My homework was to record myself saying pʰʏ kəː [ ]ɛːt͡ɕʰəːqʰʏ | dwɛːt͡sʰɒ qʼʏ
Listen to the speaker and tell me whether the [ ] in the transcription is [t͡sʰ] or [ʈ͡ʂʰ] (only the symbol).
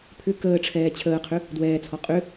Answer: ʈ͡ʂʰ